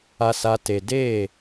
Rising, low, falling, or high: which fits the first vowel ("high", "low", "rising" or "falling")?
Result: low